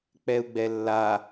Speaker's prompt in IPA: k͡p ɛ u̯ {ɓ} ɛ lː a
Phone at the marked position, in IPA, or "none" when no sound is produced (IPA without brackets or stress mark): ɡ͡b